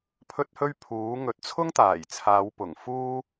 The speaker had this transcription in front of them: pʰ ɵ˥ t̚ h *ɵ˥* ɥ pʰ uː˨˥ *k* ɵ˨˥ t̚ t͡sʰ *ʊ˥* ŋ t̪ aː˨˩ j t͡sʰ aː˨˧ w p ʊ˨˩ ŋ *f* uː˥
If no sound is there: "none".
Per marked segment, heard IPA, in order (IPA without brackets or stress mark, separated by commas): ɵ˥, ŋ, ʊ˥, f